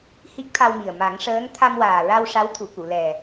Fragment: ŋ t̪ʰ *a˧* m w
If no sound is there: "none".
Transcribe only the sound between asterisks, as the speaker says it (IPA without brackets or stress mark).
a˧